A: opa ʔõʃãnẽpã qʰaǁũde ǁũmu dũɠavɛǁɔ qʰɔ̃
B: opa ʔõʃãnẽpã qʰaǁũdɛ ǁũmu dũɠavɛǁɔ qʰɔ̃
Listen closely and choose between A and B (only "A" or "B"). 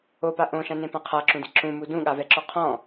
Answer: A